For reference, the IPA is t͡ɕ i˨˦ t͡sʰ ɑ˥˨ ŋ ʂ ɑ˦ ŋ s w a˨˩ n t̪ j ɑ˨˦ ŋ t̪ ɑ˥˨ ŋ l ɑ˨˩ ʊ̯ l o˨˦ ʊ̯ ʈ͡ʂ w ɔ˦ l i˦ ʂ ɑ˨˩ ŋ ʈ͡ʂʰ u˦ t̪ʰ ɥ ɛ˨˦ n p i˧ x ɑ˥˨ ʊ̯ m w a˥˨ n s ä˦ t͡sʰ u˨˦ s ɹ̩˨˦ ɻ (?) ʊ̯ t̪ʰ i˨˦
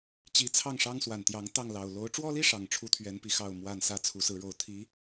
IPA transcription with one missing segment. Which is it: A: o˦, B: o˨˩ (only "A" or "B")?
B